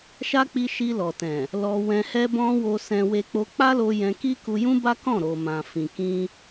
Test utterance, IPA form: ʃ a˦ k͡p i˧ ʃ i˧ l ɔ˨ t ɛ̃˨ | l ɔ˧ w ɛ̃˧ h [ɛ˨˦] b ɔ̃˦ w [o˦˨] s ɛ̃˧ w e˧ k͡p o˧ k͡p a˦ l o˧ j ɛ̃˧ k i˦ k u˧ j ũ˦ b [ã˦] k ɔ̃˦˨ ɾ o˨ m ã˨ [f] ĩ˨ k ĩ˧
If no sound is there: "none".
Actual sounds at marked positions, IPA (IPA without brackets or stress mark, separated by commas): ɛ˦, o˧, a˦, f